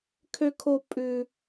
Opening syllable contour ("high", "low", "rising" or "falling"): high